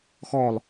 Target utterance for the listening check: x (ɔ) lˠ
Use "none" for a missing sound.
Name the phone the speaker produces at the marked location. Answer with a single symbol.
ɔ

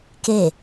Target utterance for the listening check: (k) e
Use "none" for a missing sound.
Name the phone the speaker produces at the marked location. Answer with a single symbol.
k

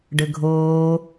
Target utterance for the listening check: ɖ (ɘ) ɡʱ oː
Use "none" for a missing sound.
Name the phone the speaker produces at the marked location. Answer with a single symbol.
ɘ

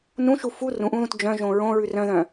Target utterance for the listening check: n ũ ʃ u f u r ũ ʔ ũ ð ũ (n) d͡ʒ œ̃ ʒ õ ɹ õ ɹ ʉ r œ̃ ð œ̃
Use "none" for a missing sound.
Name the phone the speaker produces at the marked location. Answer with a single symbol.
t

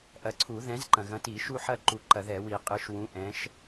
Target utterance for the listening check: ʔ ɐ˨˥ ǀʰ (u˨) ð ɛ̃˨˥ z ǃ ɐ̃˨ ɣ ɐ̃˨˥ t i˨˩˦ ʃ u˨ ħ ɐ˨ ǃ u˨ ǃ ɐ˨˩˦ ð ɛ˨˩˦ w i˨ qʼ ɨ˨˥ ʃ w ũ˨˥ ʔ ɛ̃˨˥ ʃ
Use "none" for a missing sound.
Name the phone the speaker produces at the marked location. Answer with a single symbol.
u˨˩˦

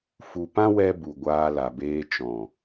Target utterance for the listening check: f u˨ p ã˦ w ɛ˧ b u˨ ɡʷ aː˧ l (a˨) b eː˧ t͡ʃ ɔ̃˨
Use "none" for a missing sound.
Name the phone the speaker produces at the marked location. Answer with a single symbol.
a˨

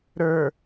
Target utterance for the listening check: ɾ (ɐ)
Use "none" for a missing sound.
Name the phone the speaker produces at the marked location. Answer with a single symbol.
ə˞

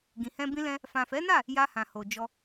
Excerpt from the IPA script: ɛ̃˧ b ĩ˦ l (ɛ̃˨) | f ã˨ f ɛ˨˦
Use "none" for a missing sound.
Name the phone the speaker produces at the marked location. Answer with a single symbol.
ɛ̃˦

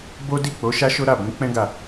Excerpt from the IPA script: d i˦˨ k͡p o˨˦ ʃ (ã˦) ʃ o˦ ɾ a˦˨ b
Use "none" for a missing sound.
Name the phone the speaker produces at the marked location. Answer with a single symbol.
a˦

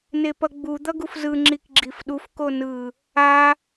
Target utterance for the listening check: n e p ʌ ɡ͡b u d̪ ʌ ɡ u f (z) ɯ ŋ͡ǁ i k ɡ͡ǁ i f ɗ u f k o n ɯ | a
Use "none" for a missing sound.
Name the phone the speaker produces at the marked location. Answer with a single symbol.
z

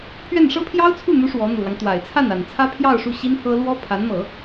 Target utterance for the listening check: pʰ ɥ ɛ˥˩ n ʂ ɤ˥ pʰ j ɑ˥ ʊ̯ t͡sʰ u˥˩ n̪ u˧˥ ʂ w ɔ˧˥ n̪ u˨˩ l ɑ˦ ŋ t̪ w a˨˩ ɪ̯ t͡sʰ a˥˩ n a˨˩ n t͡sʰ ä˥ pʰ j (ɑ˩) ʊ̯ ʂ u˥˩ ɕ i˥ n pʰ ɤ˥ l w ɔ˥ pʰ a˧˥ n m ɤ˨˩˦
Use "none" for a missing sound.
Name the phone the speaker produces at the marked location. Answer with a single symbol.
ɑ˥˧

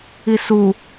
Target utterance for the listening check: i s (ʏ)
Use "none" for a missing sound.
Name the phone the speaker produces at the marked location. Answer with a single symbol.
u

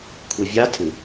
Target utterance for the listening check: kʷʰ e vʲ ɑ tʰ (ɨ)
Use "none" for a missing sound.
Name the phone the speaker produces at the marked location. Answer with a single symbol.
ɨ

